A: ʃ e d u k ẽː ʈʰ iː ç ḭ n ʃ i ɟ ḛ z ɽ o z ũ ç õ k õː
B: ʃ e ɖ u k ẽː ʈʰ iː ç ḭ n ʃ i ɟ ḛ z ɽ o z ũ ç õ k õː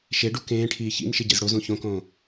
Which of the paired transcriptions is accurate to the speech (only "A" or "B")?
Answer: B